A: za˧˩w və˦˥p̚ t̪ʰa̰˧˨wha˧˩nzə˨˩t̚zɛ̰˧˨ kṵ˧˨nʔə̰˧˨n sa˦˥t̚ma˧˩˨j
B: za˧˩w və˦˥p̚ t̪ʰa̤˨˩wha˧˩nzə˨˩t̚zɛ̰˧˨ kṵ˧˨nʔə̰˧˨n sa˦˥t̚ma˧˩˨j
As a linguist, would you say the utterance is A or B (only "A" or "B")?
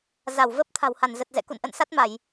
B